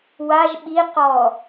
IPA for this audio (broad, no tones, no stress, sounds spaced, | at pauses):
w a ʒ ɓ i q ɔ